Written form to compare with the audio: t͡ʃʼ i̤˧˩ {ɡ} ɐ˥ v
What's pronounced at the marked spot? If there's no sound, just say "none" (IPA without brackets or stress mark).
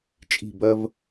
b